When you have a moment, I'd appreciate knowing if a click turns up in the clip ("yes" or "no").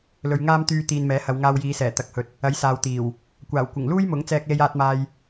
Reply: no